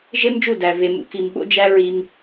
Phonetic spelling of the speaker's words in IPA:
ʒ e˦ m d͡ʒ u˦˨ d æ˨ v e˨ m ṵ˨ k i˨ m ɓ o̰˦ d͡ʒ æ˦ ɹ i˦ m

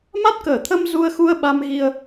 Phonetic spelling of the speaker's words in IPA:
m a˦˥ t̚ k əː˧˩ t̪ʰ ə˧ m z u˧ ə̯ x u˧ ə̯ ɓ a˧ m ɣ i˧ ə̯

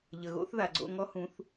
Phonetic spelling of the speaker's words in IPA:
ʎ ə˩ ɣ o̰˥ θ ð a˩ ɡ͡ǀ o̰˧ ŋ ɔ˧˥ h ũ˩˧ θ

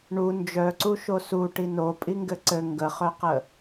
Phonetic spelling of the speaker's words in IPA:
ɳ u n d͡ʒ œ ǀ u ʃ o s u ʈ i n o pʼ i ŋ ɡ ɘ ǀ ɘ ŋ ɡ ə χ œ q ə

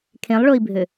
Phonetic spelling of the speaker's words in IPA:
kʰ ẽ lˠ ɭ o i̯ bʱ ø

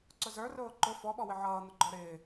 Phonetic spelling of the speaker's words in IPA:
ǀ ʊ z ə˞ r ʊː ǃ ʊ f ɔ ɓ ɔ w ɪ ʕ ʌː n̪ ʊ ɡ͡ǃ ɔ ɾ ɪː

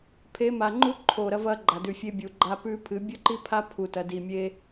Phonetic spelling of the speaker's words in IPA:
pʰ e˨˦ m a˨ ŋ͡ǃ u˦ ǃʰ o˨ ɾ ɐ˧ v ɐ˧ ɡ͡ǃ a˨ d ʉ˨ fʲ e˧ bʲ u˨ ɡ͡ǃ a˧ p ʉ˧ pʰ ɨ˨˦ bʲ ɵ˦ ǃ i˦ pʰ a˦ pʰ u˧ t ɐ˧ d i˧ mʲ e˦

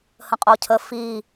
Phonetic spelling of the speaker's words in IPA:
h ə̃ qʼ o cʰ ə f i

